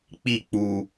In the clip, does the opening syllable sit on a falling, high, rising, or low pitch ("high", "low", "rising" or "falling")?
falling